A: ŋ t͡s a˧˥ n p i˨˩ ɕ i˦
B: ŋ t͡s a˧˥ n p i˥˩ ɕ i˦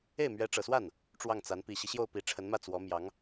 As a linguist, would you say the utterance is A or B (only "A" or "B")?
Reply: A